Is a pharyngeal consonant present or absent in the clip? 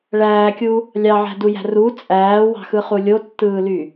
present